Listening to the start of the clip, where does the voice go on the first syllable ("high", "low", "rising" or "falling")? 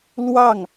falling